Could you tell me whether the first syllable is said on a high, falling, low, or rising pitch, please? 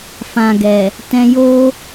low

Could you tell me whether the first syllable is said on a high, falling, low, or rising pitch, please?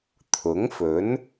rising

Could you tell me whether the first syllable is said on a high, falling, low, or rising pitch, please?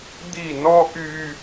falling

